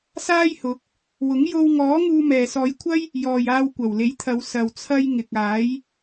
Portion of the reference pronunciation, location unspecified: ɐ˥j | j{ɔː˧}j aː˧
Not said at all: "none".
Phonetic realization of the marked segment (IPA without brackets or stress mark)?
ɔː˨